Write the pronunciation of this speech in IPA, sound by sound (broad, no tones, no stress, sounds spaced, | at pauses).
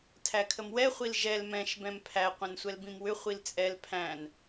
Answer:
tʰ æ kʰ ə m w ɛ χʷ i l ʒ ɛ l m ɛ̃ ʃ b ɛ̃ m pʰ æ qʷ ɛ̃ n sʷ ɛ l b ĩ m w ʏ χʷ i l t͡sʼ ɛ l pʰ æ̃ n